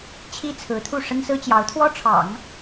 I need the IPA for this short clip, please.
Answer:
t͡ɕʰ i˥ t͡sʰ ɹ̩˧˥ t̪ʰ u˥˩ ʂ ə˥ n s ɹ̩˥ t͡ɕ j ɑ˧˥ ʊ̯ t̪ʰ w ɔ˥ ʈ͡ʂʰ ɑ̰˨˩˦ ŋ

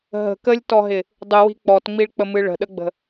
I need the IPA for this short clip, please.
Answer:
ɦ ə̤ k ə lʲ t ɔ ɦ ɪ | dˤ ɨ w i̤ k͡p ɔ t ŋ͡m i ɭ k͡p ə m ɨ ɭ ə̤ ɗ ə ɡ͡b ə̤

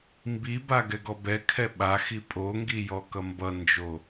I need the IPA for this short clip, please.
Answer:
m b i b a ɡ ɛ ɡ ɔ b ɛ kʰ ɛ ɓ a x i pʼ o ŋ ɡ i j ɔ k ʌ m b ʌ n d͡ʒ o

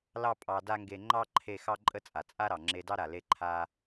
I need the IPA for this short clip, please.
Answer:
l ɑ˥ pʼ ɑ˧ d a˥ ŋ ɡ e˧ ŋ͡ǃ ɑ˥ ǃʰ e˧ x ɑ˥ ǃʼ ə˥ t͡sʼ a˩ t͡sʼ a˥ ɾ ɑ˩ ŋ͡ǁ e˧ d ɑ˥ ɾ a˩ l e˧ ǃʰ a˧

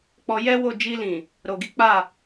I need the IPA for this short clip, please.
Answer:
k͡p ɔ˧ j ɛ˦ w o˦˨ d͡ʒ i˧ l ĩ˨ | ɾ o˨ ɡ i˨˦ k͡p a˦˨

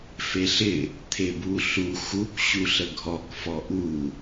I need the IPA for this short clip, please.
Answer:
f e ɬ ɪ | t̪ʰ e b u ɬ u x u k ɕ u ɬ ə ɡʱ ɔ k f ɔ ʔ u

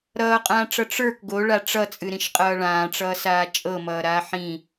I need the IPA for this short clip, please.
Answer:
ɾ ʌː qʼ ãː ʈ͡ʂ ʌ ʈ͡ʂ ə˞ k ɡ o ɭ a ʈ͡ʂ ʌ t͡sʼ ɨ ɾ ĩ ʃ qʼ ʌː ɭ ãː ʈ͡ʂ ʌː s aː t͡ʃʼ ɤ m ʌː ɾ aː ħ ĩ

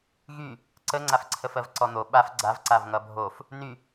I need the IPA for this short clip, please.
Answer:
ɣ y | ǀ ə ŋ͡ǀ a f ǀʰ ə f ɜ v ǀ ɔ n̪ o ɓ a f ɡ͡ǀ a v ǀ a v ŋ ʌ bʱ o f | n y

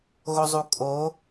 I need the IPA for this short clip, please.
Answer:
ɣ o zˤ u kʼ o

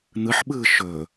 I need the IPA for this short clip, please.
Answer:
n̪ ɯ ħ ɓ ɯː ʃ ɵː

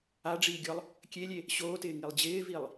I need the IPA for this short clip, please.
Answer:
a ɖ͡ʐ iː ɡʲ ɔ lˠ | kʲ e lʲ e | ɕ oː t ɪː ŋ i lˠ d͡ʑ ɪː v i lˠ

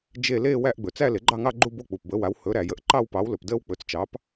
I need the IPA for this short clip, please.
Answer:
d͡ʒ e˥˧ l eː˥˧ w æ˥˧ ʔ ɡ͡b ɵ˩ t͡s æ˥˧ l e˩˥ ɡ͡ǃ ɑ˥˧ ŋ ɑ˥˧ ɡ͡ǃ u˥˧ b o˥˧ k͡p u˩ p b ə˩˥ w a˩˥ w h ɵ˩˥ ɾ æ˩ j ə˩˥ ʔ ǃ ɑ˥˧ w p ɑ˩˥ w l ɵ˩ p d əː˥˧ w k͡p ɵ˩˥ t͡s t͡ʃ ɑ˩˥ p

